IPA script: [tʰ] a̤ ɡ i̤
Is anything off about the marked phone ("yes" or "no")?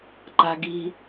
yes